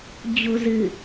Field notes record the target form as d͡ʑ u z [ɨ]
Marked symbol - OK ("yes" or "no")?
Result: yes